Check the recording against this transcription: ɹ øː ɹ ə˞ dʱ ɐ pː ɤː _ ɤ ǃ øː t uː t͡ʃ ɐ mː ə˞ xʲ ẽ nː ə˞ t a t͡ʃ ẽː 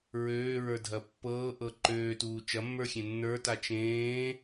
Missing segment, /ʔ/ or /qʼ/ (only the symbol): ʔ